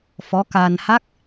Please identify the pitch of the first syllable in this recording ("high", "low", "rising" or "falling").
rising